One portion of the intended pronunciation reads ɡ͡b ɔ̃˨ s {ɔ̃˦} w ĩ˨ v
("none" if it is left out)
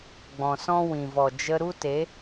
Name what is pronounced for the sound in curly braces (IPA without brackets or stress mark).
ɔ̃˦